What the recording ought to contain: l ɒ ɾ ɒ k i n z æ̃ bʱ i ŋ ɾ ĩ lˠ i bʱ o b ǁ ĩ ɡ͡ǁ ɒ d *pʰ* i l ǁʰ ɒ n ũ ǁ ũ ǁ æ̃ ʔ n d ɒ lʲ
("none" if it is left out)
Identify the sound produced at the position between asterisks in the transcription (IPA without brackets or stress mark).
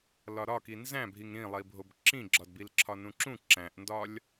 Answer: b